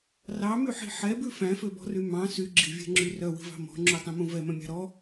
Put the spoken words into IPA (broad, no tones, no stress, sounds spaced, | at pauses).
r ɑ m y ħ i̤ ħ ɛ b ʉ f æ̃ f ø b ɔ̤ r y m ɑ̃ s y ɡ͡ǁ i̤ vʲ ɛ̤ ŋ͡ǁ y r œ w i̤ v ɑ̤ m ɔ̤ ŋ͡ǁ u tˤ ĩ m ũ v ɛ m œ̃ mʲ ɑ̤ ɾ ɔ